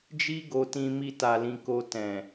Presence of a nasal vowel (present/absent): present